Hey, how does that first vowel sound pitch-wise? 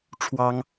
high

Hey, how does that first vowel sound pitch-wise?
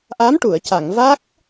rising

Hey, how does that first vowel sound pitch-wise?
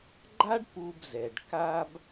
high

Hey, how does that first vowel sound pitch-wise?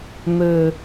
low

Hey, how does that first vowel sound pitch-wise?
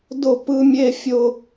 falling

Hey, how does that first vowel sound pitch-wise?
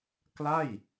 falling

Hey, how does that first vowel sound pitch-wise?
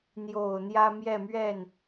low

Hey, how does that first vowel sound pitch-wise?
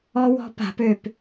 high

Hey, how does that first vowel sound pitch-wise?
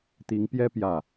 rising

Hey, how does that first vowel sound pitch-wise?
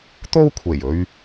high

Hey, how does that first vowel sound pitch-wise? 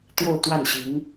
falling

